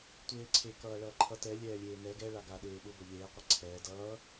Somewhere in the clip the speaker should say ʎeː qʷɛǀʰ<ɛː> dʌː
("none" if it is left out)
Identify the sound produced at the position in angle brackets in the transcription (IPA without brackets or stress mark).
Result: ɛː